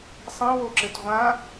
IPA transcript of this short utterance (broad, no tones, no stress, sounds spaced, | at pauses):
sˤ ĩ w o ǁ ɘ t ʁʷ ã